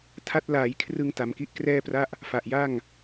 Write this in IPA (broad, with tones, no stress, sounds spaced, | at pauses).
tʰ a˦˥ t̚ l aː˩˦ j kʰ r ɯ˧ ŋ t a˩˦ m k i˦˥ ʔ k r ɛː˥˩ p r a˥˩ ʔ | f a˨˩ ʔ j a˥˩ ŋ